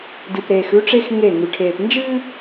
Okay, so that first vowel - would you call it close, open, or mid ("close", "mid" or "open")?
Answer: close